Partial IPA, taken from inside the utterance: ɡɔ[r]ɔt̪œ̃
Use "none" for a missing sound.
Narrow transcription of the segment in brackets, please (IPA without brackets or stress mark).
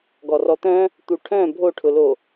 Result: r